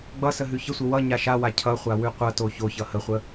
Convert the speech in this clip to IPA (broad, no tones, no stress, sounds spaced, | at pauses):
ɡ͡b ʌ s ə ɦ ʉ ç ə sʷ ə w ʌ ɲ a ʃ a w a cʰ ʌ χʷ a w ʉ qʷ ʌ t o ç o ç ʌ h ə χʷ ə